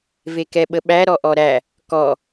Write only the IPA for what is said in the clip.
vekɛɓəɓæ ɾɔʔɔɾæ | kɔ

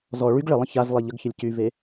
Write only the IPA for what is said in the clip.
zɔ ɭyɡ ɭəlˠə̃ çaz lˠeʎəɡçəlʲ cyve

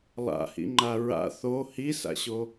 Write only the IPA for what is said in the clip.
lˠa̰hḭŋ͡ǃa ɹa̰ θo hisa̰ɕo

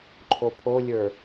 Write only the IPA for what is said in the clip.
ǃʰopʰolʲə˞

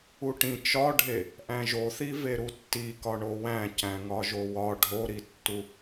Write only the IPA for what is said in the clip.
uʈĩ t͡ʃɒɖʱe | ʔæ̃ʒoθi veɾutːi kɒɳowæ̃ cæ̃ŋɒʒowɒ ɖʱoɾitːu

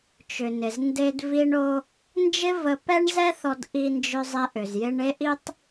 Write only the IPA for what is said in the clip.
t͡ʃʏ˩nɪ˩znde˧d vi˧ɳo˧ | nd͡ʒɪ˥və˧ pɛ˥ɳzɛ˥θɔ˧d ʔi˧nd͡ʒʏ˧zˤe˧ʔ ʏ˩zjɪ˧ɳ e˥ʔi˥tˤ

